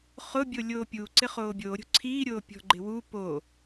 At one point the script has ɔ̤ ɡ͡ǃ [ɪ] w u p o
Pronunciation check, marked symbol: correct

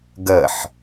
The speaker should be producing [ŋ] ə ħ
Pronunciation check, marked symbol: incorrect: ɡ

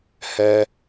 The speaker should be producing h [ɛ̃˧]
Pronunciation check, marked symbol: incorrect: ɛ˧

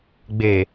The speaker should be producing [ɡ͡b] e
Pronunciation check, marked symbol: correct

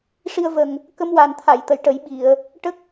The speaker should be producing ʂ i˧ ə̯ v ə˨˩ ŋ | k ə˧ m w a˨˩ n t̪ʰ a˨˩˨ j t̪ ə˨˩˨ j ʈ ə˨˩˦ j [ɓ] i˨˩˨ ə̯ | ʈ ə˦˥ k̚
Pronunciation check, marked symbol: correct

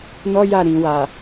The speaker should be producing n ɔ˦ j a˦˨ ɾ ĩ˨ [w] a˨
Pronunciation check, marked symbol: correct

